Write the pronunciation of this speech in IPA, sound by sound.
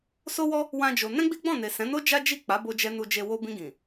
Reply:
s o˦ w ɔ˦ | w ã˦ d͡ʒ o˧ n ɛ̃˦ ɡ͡b i˦ ɡ͡b ɔ̃˦˨ n e˨ s ɛ̃˨˦ n o˦ d͡ʒ a˦ d͡ʒ i˦˨ k͡p a˨˦ b o˧ d͡ʒ ɛ˧ n u˧ d͡ʒ e˧ w o˧ b ĩ˧ ɡ ĩ˨

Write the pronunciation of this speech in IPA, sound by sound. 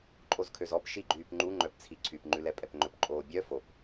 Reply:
ǃʼ o z kʰ ø z ɔ p ʃ i ɡ͡ǃ yː p ŋ͡ǃ u ŋ͡ǃ œ p t͡sʰ i ǀʰ y p ŋ͡ǃ ʉ l ɛ pʼ ɛ p ŋ͡ǃ ɵ p ǃʼ oː bʲ œ f o p

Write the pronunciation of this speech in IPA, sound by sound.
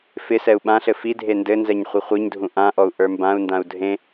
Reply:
f ɪ s ɛ u̯ ɓ ã ɬ ɘ f i dʱ e n d ɘ n z ɛ ɲ χʷ ɪ χʷ i ɲ dʱ ũ ʔ ã ʔ ɔ u̯ ʔ ə˞ m b ã u̯ n d ã u̯ dʱ ẽ

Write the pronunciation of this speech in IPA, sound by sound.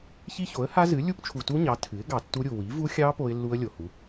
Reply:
ç i˦˥ ç o˩˥ ə̯ h a˦˥ z ɨ˩˥ lʲ u˦˥ p t͡ʃʰ u˨ t u˦˥ ɲ ɑ˩˥ tʰ ɨ˩˥ ɪ̯ ɡ ɑ˨ tː u˦˥ ɾʲ u˨ w i˩˥ v u˦˥ xʲ ɑ˦˥ p o˦˥ ɪ̯ lː u˦˥ ə̯ lʲ o˨ h u˩˥

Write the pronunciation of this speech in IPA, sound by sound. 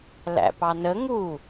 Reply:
l æ̰ p ɑ n ə ŋ u

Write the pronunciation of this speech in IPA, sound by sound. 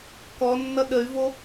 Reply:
k ɔ nː ʌ ɗ ə y̯ v o

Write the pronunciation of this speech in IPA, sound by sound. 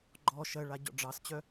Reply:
ɡ͡ǃ ɔ ʃ ɜ ɭ a ɟ ɔ̰ ɖ͡ʐ ɑ s t͡ɕ œ

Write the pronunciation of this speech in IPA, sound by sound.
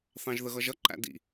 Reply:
θ ɑ̃ ʒ ð ə ɣ ʌ ʒ ʌ ǃ æ̰ d ḭ

